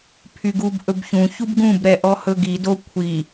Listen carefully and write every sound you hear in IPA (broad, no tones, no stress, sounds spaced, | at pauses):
pʰ y ɡ u b ʔ ɵ b ç ũ ç u b ɡ ũ b ɾ ɛ ʔ ɔ h ɵ ɡ i d o kʷʰ i